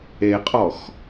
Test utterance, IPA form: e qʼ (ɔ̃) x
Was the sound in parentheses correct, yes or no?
no